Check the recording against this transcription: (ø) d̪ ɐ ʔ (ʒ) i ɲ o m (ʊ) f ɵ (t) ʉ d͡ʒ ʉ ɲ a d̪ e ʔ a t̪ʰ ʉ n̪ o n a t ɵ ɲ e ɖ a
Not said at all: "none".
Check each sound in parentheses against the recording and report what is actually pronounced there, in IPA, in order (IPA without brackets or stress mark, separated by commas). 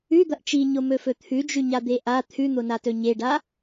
ʉ, t͡ʃ, ɵ, t̪ʰ